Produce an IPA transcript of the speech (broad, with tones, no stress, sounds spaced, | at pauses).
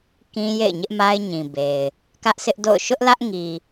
k ĩ˦ j ḛ˦˨ ɪ̯ ɲ ɪ˦ ʔ m a˦ ɪ̯ ɲ ĩ˨ b e˨ ɪ̯ | k ä˦ ʔ sʰ ɪ˦ ʔ d o̰˦˨ ʊ̯ ʃ ʊ˦ ʔ l ä˦ ʔ ŋ i˨